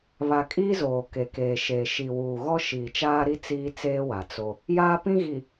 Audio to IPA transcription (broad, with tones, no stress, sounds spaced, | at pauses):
β a˨ kʼ iː˦ z oː˨ k e˨ k eː˨ ʃ eː˨ ʃ i˨ w uː˨ ɣ ɔ˦ ʃ iː˨ t͡ʃ aː˦ ɾ i˦ t͡s iː˦ t͡s eː˦ w a˨ t͡s o˦ | j aː˦ p ĩ˦ ɣ i˨